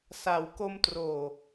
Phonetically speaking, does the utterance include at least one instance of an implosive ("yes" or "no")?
no